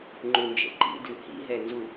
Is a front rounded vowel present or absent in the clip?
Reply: absent